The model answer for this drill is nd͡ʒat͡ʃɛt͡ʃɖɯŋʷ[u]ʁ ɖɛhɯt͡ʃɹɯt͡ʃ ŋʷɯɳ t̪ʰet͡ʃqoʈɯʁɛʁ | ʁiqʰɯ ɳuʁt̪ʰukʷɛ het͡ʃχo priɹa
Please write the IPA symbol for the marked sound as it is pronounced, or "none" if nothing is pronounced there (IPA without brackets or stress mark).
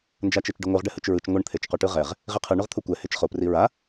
ɯ